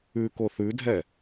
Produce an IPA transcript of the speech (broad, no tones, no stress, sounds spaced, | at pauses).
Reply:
ʉ k o θ ʉ dʱ ɛ